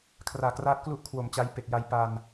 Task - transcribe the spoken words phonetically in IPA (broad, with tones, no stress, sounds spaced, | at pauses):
kʰ r aː˨˩ k r aː˦˥ t̚ k l u˥˩ ʔ kʰ w o˨˩ m t͡ɕ a˦˥ j p e˨˩ k̚ j a˧ j p a˧ n